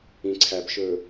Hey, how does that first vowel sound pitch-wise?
low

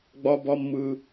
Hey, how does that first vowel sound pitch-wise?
high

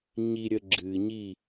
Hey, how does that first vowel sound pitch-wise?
low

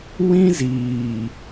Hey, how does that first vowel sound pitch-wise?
high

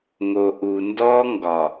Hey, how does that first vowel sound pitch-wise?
low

